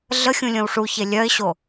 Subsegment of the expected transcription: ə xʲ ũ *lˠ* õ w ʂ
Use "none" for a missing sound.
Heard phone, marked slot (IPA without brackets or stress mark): lʲ